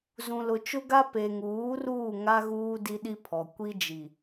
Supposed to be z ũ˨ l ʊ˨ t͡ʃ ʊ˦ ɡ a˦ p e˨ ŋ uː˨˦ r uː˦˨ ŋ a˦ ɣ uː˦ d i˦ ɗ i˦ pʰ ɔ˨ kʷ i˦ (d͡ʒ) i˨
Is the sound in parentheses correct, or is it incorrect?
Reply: correct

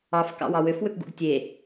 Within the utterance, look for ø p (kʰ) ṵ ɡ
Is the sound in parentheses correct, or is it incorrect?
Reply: incorrect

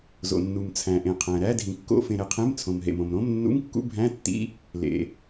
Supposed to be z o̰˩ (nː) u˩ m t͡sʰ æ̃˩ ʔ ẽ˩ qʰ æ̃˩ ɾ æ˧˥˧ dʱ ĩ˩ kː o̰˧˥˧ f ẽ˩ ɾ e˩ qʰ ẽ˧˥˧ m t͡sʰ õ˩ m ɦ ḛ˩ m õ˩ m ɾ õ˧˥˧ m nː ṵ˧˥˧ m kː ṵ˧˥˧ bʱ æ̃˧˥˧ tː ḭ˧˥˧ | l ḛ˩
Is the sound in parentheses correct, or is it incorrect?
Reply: correct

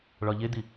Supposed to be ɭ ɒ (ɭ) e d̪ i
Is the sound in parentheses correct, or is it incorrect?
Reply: incorrect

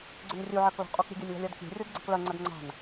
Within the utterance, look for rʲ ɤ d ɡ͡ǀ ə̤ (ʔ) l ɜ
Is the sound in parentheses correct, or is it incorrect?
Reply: incorrect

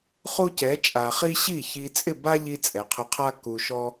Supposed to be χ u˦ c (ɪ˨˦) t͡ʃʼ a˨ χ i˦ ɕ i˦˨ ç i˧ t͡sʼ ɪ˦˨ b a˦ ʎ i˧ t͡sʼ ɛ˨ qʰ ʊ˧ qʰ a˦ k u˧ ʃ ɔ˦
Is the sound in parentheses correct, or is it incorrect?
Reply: incorrect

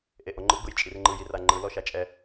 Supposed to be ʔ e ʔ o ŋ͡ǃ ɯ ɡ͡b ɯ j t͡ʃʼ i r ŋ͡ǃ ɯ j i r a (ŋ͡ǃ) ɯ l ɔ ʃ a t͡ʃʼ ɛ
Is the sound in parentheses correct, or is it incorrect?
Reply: correct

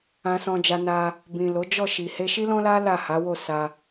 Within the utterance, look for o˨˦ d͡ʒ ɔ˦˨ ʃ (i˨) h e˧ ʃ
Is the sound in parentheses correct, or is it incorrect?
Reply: correct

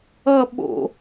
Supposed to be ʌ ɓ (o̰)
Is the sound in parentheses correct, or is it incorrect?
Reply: correct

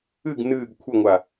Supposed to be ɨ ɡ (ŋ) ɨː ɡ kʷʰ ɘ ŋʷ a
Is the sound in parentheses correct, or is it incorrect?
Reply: incorrect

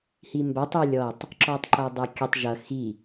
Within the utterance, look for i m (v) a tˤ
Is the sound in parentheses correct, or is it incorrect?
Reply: incorrect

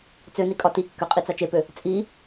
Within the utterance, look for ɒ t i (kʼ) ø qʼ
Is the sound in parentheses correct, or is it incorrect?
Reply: incorrect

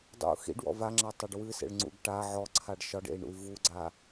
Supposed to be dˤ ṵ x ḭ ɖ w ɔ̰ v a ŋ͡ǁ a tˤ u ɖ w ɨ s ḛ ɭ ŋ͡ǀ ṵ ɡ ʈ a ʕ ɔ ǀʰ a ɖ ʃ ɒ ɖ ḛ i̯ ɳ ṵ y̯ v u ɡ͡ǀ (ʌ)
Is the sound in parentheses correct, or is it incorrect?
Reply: incorrect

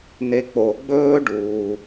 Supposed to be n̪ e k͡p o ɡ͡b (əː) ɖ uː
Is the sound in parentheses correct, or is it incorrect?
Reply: incorrect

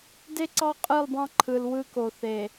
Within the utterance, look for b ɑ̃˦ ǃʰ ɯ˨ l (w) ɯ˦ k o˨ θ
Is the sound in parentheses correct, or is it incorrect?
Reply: correct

